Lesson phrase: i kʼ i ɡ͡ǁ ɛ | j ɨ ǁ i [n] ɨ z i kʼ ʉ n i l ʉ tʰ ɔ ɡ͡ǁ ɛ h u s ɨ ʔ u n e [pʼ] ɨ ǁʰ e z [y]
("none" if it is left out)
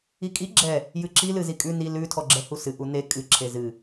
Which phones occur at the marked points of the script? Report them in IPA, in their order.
l, kʼ, ɨ

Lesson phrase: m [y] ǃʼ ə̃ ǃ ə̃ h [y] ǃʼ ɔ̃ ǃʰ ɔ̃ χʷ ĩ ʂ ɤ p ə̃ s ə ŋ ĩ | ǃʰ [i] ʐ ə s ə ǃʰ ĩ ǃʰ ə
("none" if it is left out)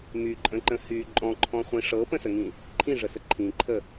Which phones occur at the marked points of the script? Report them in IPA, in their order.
y, y, ĩ

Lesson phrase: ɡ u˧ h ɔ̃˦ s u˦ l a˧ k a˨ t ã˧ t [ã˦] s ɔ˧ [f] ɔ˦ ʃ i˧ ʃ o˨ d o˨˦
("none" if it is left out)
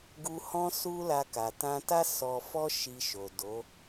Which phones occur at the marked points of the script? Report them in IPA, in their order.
a˦, f

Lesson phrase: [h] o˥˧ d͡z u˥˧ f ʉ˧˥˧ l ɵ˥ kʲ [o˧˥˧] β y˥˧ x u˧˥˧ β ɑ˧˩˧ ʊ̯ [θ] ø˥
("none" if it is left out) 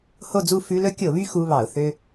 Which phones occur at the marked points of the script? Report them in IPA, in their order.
h, o˧˩˧, θ

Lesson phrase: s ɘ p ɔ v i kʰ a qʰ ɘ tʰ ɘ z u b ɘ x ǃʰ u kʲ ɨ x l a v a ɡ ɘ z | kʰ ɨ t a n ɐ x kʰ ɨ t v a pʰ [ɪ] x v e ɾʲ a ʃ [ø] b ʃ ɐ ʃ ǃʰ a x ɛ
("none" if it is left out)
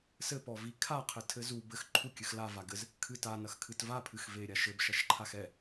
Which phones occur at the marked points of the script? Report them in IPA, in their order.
ɨ, ɘ

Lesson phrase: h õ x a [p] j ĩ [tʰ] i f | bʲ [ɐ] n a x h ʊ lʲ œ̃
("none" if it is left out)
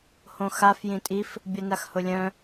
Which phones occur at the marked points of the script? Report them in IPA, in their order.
f, tʼ, ɐ

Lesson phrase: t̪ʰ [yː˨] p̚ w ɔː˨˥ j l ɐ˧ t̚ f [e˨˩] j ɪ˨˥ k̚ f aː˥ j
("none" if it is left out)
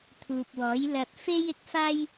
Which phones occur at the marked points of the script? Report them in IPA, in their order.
uː˨, e˥

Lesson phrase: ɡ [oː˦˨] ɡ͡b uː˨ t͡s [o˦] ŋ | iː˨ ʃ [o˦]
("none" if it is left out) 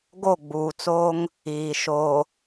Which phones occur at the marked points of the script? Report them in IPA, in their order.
o˦˨, oː˦, o˨

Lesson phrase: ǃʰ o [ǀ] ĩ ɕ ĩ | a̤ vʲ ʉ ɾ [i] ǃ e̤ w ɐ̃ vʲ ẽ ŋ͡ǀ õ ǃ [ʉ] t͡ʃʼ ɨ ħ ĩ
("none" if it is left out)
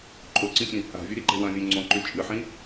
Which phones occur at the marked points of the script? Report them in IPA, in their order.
ǀ, i, ʉ

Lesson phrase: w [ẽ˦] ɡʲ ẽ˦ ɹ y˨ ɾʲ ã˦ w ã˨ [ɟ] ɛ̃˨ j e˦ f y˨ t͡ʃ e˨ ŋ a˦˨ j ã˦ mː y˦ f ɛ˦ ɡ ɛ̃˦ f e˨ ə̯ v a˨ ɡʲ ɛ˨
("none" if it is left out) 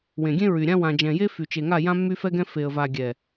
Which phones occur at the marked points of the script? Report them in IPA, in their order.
ẽ˨, d͡ʒ

